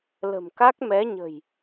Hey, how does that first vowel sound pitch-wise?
low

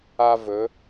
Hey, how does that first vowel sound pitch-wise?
high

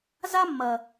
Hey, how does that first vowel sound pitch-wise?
high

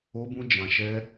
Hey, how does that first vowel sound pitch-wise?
high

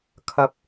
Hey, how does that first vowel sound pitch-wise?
low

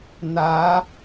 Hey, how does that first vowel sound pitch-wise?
rising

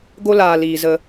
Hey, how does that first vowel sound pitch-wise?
high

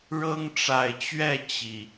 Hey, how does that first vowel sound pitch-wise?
high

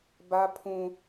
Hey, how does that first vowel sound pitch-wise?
high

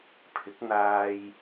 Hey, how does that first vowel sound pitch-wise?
rising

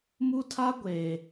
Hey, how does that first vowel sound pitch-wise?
high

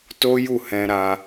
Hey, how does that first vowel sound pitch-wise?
high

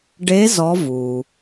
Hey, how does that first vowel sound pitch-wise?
rising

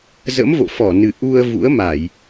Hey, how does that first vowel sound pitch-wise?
rising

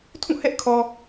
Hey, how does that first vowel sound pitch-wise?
falling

